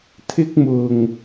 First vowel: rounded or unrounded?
unrounded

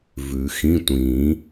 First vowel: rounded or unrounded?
rounded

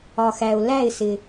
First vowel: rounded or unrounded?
rounded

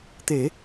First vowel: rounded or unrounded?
unrounded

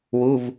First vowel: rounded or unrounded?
rounded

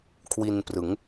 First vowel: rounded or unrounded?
unrounded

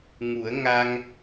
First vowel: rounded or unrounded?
rounded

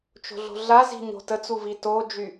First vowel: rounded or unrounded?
rounded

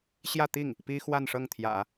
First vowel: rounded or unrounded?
unrounded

